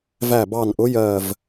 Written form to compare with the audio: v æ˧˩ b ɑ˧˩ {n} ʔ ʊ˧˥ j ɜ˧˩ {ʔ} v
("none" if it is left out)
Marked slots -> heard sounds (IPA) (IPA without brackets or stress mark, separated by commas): n, none